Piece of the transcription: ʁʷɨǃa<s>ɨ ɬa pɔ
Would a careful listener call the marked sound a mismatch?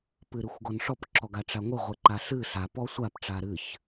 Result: yes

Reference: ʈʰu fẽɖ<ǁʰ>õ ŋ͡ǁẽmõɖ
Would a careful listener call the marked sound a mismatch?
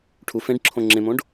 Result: no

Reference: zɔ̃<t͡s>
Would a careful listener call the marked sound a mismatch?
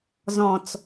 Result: no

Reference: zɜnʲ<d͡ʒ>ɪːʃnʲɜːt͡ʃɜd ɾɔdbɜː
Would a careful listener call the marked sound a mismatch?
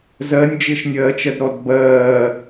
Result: no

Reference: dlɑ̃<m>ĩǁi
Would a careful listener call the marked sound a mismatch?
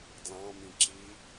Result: no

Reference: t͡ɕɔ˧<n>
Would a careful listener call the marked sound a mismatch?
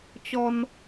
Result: no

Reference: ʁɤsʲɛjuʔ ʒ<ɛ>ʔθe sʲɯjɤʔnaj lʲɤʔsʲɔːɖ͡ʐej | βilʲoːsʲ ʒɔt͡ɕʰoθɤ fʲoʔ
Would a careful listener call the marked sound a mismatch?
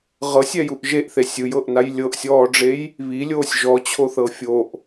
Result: yes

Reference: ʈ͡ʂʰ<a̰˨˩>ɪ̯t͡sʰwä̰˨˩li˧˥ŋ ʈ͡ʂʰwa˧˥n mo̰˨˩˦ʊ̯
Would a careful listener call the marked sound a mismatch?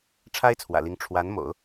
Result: yes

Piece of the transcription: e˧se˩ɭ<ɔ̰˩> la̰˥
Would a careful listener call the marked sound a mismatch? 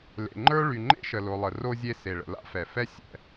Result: yes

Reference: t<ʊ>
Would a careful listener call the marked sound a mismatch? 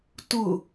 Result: no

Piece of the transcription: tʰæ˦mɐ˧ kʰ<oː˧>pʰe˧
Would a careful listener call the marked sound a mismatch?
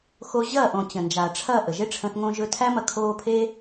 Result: no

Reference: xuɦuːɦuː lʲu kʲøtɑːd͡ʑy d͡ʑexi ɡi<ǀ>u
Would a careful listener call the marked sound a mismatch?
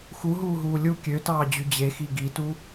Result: yes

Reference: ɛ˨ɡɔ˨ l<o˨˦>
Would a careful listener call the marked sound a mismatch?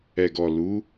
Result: yes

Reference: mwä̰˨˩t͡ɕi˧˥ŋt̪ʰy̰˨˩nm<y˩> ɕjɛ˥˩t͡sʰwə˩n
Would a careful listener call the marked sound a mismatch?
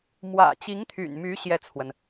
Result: yes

